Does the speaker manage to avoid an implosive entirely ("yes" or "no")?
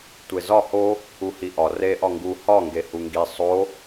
yes